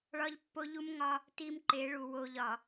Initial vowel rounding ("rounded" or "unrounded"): rounded